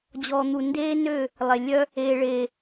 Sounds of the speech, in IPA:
d͡ʑ ɔː˨ n̪ u˨ n d eː˦ n ø˦˨ | lˠ e˨ lʲ œ˦ | eː˨ ɭ eː˨

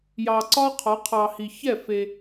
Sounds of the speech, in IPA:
j ɑ˨ ǀ ɒ˦ qʰ ɒ˨˦ qʰ ɑ˨ h i˨ ç ɛ˦˨ f e˦

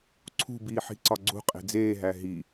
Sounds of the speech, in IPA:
ǀʰ ṳ b iː ħ i̤ ǀ ɒ ɡ͡ǀ ṳ qʼ e̤ d͡z eː ɦ æ ɦ i

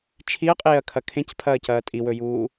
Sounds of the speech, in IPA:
t͡ʃʰ i ɐ̯ qʼ eː ɐ̯ kʰ ɐ kʰ ẽ c pʰ ɐː c ɐː tʼ i w ɵ j uː

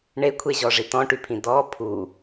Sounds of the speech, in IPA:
ɳ e kʷʰ e ʑ ɔ ʐ i t ɔ̃ ʈ y pʰ ĩ d ɔ pʰ u

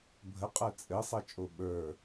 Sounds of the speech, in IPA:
bʱ ə qʼ ə˞ t͡sʼ ɘ sˤ ɘ t͡ʃʼ o ɓ ə˞

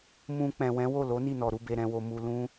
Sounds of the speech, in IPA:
m ũ˧ k͡p ɛ̃˨ w ɛ̃˨˦ w o˦˨ l o˨˦ n i˦˨ n ɔ˨ ɾ u˨˦ b e˧ ɾ ɛ̃˧ w o˧ m u˧ l ũ˦

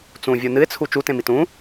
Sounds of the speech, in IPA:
t͡s ũ vʲ u n ɨ ɪ̯ t͡sʰ u t͡ʃ u t ẽ m i t ũ

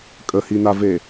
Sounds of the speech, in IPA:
kʼ ə h i n a v e

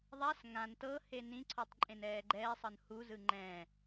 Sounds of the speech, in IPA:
ðˤ a s ŋ ã n t ɤ h e n ĩ ǀʰ ɔ tˤ ǃʼ ẽ n ɛː ɡ͡ǃ ɛː sˤ ɤ n h u z ɯ ŋ͡ǃ ɛ̃

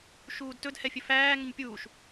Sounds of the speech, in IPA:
ʃ uː d t ɵ d h ɛ fʲ ɵ f æː ŋ ə ɲ pʲ uː ʃ

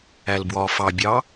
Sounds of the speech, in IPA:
æ l b w ɒː f ɑ bʲ ɑː

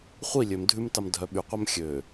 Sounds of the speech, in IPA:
χʷ i lʲ ø m dʱ ʉ m t ɑ m dʱ œ ɓ y qʷ œ m xʲ ø

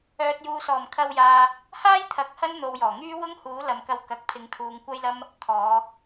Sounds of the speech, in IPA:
œː˨ t̚ j uː˨ s ɔː˨˩ m kʰ ɐ˧ w j aː˨ | h aː˥ j t̪ʰ ɐ˨˥ k̚ h ɐ˥ n n̪ o˨ w j ɔː˨˩ ŋ yː˥ w ʊ˥ ŋ h uː˨˥ l ɐ˨ m k ɐ˧ w k ɐ˨ k̚ pʰ ɪ˨˧ ŋ kʰ uː˨˧ ŋ kʷ ɐ˥ j l ɐ˥ m | kʰ ɔː˨˧

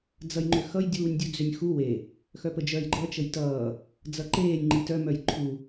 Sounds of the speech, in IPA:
d͡z ʌ j ŋ͡ǃ ʏ x ʌ j dʲ uː nʲ dʲ u d͡z ʏ nʲ x u w e | x œ p ə d͡ʒ œ j ɡ͡ǃ ʌ t͡ʃ ə j t ʌː | d͡z ʌ ǃ eː nʲ ŋ͡ǃ i t œ m œ j ǃʰ u

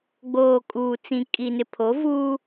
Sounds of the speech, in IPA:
ɡ͡b oː˨ kʼ uː˨ t͡s ĩ˨ kʼ i˨ n ɪ˨ pʰ o˨˦ v uː˦

